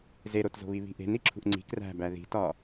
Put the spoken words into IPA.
z e ɾ o t z o̤ β i β i̤ ʔ e̤ n i ǁʰ ṳ ʔ ŋ͡ǀ i̤ k r æ̤ b æ ð i̤ t ɒ

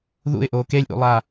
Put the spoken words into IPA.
ð ṵ ɪ̯ ʔ oː k e lʲ ʔ ṵ lˠ aː

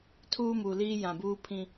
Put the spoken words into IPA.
tʰ uː˦ m u˨ l iː˦ j ã˨ b uː˦ pʰ ĩ˦

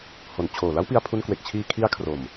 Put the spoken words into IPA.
h o˩˦ n t͡ɕʰ oː˨˩ l a˦˥ w p i˧ a̯ pʰ u˧ n k w e˨˩ k̚ t͡ɕʰ iː˧ kʰ i˦˥ a̯ kʰ r o˨˩ m

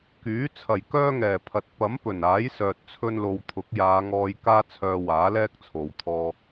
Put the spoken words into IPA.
k yː˨˥ t͡sʰ ɐ˨˩ j k œː˥ ŋ ɛː˨˩ pʰ ɐ˨ t̚ p ɐ˨˥ m p ɵ˨˩ n aː˨˥ j s œː˨ t̚ t͡sʰ ɵ˧ n l o˨ w t̪ʰ ʊ˨˥ k̚ j aː˨˧ ŋ ɔː˧ j k aː˧ t͡sʰ œː˨ w aː˨˥ l ɛː˥ k̚ t͡sʰ o˨ w t̪ʰ ɔː˧

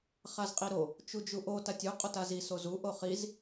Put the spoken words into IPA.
χ a z qʼ i ɾ o | t͡ʃ u d͡ʒ u ʔ o t a tʲ u qʼ o t a z i s o z u ʔ o χ i z

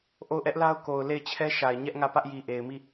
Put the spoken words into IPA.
ʔ o˦˨ ʊ̯ ʔ ɛ˦ ʔ l a˦ ʊ̯ k o˨ ʊ̯ l e˦˨ ɪ̯ t͡ɕʰ ɛ˦ ʃ a˨ ɪ̯ ɲ ɛ˦ ʔ ŋ ä˦˨ p ä˦ ʔ j i˨ ʔ e˨ ɪ̯ m i˦˨

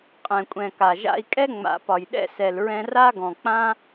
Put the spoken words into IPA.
qʼ ɛ̃˨ kʷʼ ɛ̃˨ k a˨ ʒ a̰˧ i̯ kʼ ɛ˦ ŋ͡m a̰˨˦ p ɒ˨ j ɗ ɛ̰˦ s ɛ˨ l ɹ ɛ̃˧ r a˦ ɡ ɔ̃˨ k͡p ã˦

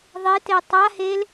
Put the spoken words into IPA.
ðˤ e t e tˤ a h e l

